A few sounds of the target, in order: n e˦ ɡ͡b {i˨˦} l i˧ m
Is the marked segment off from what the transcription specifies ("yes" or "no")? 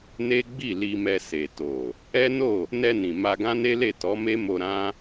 yes